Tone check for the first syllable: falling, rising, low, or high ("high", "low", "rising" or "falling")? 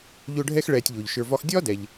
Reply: high